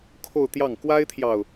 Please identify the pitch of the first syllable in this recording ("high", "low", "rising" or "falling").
falling